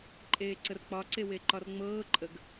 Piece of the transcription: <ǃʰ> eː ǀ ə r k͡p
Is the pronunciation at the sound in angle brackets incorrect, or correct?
incorrect